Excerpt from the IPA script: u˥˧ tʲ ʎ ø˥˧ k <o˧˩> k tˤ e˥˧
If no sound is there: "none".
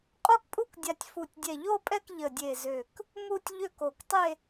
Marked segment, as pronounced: o˧˩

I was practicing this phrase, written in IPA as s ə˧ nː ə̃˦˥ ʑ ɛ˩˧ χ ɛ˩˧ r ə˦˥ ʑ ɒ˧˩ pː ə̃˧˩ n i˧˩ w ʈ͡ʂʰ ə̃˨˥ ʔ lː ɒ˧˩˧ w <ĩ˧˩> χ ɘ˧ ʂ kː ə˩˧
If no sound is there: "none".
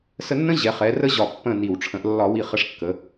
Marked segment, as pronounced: i˧˩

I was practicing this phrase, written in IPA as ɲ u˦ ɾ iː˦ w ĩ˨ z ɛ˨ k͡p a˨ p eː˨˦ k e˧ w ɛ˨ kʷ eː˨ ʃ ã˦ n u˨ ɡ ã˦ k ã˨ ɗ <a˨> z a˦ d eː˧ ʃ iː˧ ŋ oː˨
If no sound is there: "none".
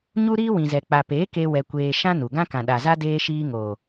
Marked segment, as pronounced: a˨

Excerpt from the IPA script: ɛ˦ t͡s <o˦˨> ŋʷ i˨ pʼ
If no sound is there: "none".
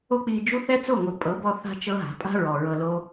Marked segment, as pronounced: o˦˨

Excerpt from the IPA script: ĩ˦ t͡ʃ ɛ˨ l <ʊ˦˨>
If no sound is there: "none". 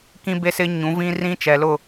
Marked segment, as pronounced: ʊ˦˨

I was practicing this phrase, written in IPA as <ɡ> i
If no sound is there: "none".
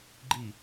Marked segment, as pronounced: ɡ͡ǃ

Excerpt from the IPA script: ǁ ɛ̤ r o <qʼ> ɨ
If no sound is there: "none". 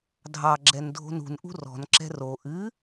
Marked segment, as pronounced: ʔ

